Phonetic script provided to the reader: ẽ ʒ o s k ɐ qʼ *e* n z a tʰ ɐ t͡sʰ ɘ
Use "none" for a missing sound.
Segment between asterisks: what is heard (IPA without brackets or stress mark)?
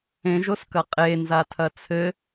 e